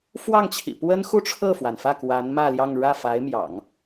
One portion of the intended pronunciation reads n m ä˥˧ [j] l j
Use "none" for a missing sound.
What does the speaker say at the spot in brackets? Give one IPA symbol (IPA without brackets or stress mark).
none